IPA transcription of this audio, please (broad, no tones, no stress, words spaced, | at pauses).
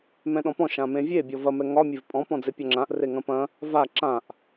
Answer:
mɛ̃ɗɔ̃pɔ̃ ʃãmẽvʲe bʲɔvɐ mɛŋɒ mʲevpʼɔ̃ pɔ̃d͡zepʲɒŋ͡ǁãʔ reŋɐ̃pɐ̃ | va ǁãʔ